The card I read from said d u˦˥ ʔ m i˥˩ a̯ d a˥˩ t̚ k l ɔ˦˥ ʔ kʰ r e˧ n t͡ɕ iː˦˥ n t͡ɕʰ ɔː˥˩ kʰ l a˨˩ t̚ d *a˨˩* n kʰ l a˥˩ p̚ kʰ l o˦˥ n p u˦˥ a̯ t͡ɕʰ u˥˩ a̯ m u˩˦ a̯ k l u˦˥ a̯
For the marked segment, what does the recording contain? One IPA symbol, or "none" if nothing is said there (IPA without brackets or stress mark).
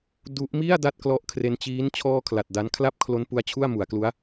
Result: a˦˥